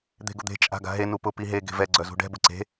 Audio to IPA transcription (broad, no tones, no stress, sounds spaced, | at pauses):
d̪ e̤ ɡ ʊ d̪ e̤ t͡ʃʼ a̤ ɡ a̤ ɦ e n u p ʊ p i ɦ e ɡ e̤ v ɛ ɡ͡ǀ œ z ṳ ɖ ɛ̤ b ʊ ǀ e̤